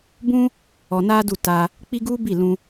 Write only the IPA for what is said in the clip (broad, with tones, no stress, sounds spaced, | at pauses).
b ũ˦ | ɔ˧ n a˦ d u˦˨ t a˧ | k͡p i˦ ɡ u˦ b i˦˨ l ũ˧